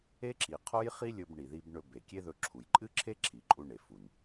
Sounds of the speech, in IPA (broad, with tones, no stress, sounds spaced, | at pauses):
e˥ ǁ i˩ qʰ o˥ j χ i˥ lʲ ɵ˧ b ɳ i˩ ð i˧ b ɳ ɵ˧ b e˩ kʲ e˥ ð ɵ˧ ǁʰ u˩ j ǃʼ ɨ˥ ǁʰ e˥ ǁʰ i˩ ǃʼ u˧ ɳ e˩ f u˩ n